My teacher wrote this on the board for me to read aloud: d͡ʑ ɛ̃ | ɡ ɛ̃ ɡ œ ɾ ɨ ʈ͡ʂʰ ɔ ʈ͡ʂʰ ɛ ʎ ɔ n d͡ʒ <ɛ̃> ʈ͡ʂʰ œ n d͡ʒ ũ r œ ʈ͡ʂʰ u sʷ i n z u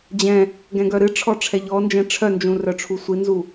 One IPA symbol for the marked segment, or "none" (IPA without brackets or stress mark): ɛ̃